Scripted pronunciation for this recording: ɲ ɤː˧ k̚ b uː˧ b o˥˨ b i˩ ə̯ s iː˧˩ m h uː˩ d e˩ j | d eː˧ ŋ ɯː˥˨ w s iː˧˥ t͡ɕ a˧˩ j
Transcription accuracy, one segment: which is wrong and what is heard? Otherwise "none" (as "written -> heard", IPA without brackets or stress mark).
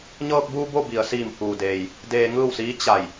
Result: e˩ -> eː˩